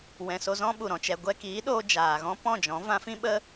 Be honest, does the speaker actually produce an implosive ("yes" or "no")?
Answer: yes